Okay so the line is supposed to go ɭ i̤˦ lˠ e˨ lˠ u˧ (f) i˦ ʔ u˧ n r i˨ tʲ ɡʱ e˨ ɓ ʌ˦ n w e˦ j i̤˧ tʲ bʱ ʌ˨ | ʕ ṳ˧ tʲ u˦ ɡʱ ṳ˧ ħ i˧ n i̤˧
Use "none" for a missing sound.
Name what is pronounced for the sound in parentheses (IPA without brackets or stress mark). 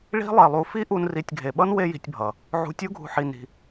f